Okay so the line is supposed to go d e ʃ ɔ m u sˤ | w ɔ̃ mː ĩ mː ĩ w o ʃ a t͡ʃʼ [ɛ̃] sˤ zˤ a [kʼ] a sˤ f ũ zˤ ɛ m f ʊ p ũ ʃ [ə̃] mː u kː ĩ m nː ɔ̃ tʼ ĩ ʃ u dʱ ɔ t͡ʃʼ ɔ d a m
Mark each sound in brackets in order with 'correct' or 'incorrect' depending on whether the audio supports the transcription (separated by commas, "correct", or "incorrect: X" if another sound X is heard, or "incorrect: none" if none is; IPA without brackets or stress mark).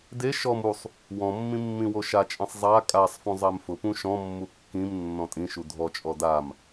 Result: correct, correct, incorrect: ɔ̃